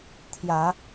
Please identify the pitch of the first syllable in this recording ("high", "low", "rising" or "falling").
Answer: low